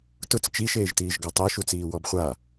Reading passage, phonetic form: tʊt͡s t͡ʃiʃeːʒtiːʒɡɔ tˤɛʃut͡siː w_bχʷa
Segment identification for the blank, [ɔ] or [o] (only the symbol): ɔ